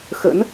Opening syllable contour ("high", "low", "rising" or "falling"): rising